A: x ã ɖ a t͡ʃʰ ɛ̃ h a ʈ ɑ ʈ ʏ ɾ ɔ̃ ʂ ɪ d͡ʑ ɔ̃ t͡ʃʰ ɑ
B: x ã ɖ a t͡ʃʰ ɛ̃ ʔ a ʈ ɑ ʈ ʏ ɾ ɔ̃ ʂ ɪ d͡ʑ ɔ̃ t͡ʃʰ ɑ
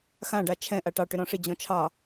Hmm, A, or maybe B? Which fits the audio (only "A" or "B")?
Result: B